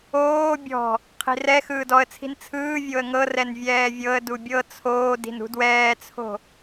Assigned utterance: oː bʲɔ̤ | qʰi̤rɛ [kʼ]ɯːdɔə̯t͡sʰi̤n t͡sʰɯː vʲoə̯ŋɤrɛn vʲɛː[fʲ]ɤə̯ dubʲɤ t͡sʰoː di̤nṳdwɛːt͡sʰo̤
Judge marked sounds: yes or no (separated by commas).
no, no